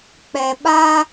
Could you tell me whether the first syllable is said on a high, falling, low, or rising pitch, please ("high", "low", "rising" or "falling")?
low